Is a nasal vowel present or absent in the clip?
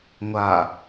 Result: absent